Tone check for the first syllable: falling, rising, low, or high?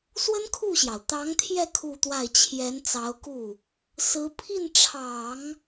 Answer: high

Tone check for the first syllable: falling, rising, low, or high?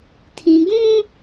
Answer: low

